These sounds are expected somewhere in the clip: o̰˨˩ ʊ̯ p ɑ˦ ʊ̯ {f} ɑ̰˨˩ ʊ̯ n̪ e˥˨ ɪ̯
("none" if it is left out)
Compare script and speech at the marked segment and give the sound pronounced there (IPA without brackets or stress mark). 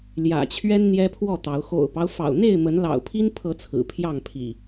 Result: f